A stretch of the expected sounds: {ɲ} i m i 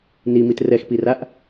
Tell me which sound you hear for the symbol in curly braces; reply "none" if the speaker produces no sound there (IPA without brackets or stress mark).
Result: n